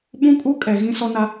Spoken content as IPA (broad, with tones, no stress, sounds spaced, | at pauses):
ɓ ũ˦ kʼ u˦ kʼ ɛ˨ ɣ ĩ˦ s ɔ˦ n a˦